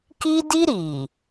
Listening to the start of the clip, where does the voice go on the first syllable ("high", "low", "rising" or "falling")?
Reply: high